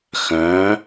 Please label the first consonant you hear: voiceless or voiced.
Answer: voiceless